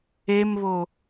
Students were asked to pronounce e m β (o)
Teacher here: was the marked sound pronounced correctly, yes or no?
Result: yes